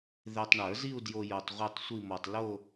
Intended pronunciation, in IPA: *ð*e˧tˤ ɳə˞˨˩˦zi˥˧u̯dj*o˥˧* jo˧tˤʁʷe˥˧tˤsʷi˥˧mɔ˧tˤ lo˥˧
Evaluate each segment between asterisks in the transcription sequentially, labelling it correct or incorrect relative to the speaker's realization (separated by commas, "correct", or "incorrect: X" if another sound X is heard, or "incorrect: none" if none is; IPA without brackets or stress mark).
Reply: correct, incorrect: o˧